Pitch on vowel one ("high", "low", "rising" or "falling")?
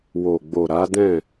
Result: low